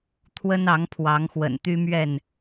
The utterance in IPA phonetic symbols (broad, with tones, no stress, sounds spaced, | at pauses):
t̪ʰ w ə˦ n ɑ˨˦ ŋ pʰ w ɑ˨˦ ŋ x w ə̰˨˩ n t̪ y˦ m ɥ ɛ˥˨ n